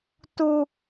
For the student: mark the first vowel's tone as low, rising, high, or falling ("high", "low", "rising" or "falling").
high